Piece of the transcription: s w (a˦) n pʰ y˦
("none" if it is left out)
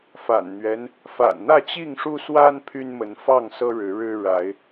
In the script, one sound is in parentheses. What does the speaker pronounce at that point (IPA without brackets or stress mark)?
a˦